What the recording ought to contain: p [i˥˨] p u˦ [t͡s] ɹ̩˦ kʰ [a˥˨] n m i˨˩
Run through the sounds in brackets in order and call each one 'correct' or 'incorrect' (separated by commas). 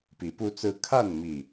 incorrect, correct, correct